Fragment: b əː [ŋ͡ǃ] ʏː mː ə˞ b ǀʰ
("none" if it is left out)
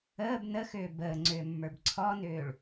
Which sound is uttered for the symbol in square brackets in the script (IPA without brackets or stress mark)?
ŋ͡ǀ